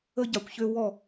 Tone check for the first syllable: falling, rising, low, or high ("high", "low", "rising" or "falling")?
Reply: high